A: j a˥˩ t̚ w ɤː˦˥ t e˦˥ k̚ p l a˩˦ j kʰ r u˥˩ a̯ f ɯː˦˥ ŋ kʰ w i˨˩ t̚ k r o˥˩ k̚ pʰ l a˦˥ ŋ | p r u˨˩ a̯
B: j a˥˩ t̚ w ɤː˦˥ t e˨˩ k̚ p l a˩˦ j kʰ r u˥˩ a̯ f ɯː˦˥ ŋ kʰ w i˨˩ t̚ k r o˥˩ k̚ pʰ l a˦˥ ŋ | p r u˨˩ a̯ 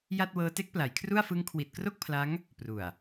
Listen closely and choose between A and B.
A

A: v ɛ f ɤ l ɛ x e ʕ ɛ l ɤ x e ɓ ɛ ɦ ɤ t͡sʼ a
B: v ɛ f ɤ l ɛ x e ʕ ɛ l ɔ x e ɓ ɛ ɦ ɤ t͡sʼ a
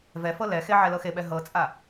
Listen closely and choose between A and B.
A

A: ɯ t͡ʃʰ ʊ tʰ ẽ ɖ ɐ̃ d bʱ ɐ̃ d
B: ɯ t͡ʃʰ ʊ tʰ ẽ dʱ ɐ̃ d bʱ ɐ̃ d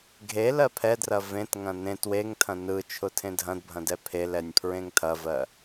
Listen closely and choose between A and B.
B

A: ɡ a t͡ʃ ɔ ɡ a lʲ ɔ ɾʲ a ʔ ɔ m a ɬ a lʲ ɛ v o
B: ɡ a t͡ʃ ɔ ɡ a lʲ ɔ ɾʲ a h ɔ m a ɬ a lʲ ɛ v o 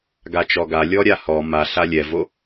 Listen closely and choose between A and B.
B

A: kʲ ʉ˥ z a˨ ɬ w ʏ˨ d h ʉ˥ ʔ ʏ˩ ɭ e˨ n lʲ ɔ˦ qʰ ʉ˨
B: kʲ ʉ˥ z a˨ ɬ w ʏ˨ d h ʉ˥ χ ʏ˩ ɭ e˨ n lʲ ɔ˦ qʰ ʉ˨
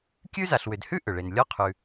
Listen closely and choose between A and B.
A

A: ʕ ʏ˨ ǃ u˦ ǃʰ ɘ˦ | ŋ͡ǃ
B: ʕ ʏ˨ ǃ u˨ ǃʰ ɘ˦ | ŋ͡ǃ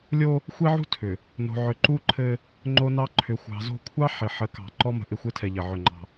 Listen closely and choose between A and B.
A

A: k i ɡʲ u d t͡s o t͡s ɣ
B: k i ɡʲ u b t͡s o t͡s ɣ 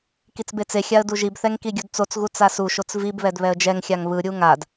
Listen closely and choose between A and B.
A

